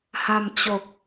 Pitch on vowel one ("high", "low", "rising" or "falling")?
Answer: low